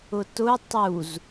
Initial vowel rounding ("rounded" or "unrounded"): rounded